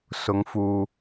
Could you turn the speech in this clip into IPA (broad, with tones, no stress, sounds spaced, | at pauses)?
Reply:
s ʊ˨˧ ŋ f uː˨